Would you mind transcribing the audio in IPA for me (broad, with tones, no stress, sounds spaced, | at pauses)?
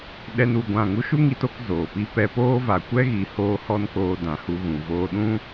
ɗ ɛ˦ n u˧ ɡʷ ã˦˨ ŋ u˦ ʃ u˦ ŋ i˧ t o˧ k z oː˨ p i˦ p ɛ˧ p oː˦ v a˨ kʷ ɛ˦ ɣ i˨ h oː˦ h ɔ˦ n k oː˧ d ã˨ h u˧ ɣ ũ˨ v oː˧ ɗ ũ˦